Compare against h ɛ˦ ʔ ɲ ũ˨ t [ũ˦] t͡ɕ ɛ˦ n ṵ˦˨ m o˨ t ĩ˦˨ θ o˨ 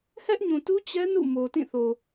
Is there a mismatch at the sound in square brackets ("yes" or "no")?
yes